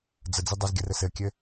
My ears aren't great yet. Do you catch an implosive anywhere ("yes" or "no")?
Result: no